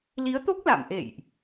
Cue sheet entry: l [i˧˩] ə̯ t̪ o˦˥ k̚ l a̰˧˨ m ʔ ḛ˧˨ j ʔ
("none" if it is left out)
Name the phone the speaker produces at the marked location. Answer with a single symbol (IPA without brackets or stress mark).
i˨˦